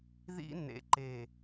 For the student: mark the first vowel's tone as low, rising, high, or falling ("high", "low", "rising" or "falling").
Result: high